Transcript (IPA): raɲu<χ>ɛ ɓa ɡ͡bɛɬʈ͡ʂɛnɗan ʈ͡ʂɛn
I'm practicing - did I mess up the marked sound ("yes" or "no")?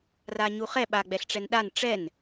no